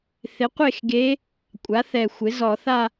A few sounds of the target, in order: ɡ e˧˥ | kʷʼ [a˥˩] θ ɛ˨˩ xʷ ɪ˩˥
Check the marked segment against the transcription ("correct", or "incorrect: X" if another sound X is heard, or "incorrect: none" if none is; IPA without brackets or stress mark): incorrect: a˩˥